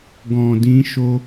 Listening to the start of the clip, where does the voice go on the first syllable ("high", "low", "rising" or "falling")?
low